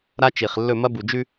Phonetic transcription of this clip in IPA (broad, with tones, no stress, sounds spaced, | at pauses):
ɾ a˦ t͡ʃ i˨ χ lː ɵ˦˨ m ɐ˦ b u˨ d͡ʒ ʉ˦